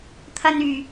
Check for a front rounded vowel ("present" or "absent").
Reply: present